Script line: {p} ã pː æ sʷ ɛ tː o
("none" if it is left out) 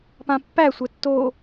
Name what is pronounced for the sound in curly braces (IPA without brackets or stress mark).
p